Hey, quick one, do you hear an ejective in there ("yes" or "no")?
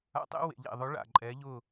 yes